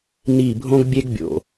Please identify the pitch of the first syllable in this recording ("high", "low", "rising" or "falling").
falling